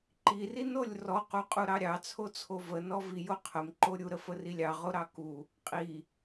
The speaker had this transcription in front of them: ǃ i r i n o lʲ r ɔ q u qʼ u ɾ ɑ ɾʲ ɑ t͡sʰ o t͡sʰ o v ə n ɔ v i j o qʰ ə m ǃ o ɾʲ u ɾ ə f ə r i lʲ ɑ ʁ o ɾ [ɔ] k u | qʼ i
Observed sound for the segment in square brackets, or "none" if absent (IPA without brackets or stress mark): ɑ